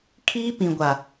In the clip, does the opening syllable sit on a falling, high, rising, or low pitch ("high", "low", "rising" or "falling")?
high